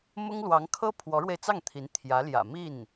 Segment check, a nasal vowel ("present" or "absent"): absent